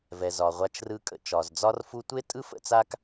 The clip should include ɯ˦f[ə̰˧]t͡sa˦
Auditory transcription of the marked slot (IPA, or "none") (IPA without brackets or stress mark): ə̰˦